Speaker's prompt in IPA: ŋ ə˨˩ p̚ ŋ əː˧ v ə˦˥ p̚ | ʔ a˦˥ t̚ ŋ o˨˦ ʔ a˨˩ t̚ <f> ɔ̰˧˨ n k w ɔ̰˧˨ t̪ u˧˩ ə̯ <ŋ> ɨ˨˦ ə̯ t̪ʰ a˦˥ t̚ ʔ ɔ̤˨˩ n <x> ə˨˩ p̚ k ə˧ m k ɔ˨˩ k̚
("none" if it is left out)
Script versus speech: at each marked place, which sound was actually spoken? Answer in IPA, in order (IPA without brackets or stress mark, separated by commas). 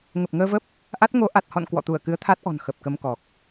h, k, x